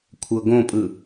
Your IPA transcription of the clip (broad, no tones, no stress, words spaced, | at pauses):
kʷʰɤɡõpʼɯ